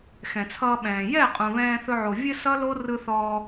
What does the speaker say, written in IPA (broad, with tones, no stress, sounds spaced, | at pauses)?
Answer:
x ɛ̃˨ t͡sʰ ʌː˧ ɓ ɛ̃ː˨ j ɛ˦˨ qʼ ũ˨ β ɛ̃ː˧ θ ɵ˧ ʕ o˨ vʲ ɘ˧ s ʌ˦ l o˦ r ɯ˧ θ ɔː˧